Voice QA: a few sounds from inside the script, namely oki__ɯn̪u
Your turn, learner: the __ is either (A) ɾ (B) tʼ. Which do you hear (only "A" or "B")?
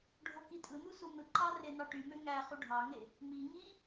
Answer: B